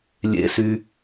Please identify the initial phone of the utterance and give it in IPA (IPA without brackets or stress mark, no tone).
lʲ